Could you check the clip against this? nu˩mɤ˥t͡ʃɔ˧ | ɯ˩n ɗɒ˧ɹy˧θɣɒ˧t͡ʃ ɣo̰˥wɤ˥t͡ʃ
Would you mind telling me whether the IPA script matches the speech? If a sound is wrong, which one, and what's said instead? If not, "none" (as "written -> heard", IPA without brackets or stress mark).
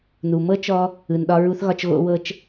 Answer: y˧ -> u˧